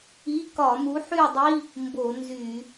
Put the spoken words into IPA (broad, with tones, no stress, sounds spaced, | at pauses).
i˧˥˧ k ɒ˧˩˧ m u˨˥ ħ y˥˧ dˤ i˧˥˧ | m b o˧˩˧ n z y˧˩˧